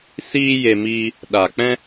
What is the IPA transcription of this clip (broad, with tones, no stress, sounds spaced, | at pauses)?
s iː˦ j e˧ m iː˧ | ɗ a˨ k͡p ɛ̃˦